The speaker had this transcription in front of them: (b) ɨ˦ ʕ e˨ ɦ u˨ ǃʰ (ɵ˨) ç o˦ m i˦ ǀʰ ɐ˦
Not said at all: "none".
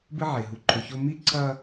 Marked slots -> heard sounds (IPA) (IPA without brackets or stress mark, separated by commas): b, ɵ˨